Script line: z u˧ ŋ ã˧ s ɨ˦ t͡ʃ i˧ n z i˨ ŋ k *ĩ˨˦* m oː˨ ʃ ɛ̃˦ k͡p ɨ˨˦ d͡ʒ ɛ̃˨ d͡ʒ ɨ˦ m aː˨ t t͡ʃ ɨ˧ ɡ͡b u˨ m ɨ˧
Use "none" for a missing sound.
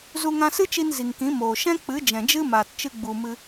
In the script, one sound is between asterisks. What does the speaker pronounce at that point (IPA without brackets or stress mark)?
ĩ˨˦